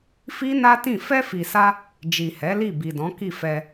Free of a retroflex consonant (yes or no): yes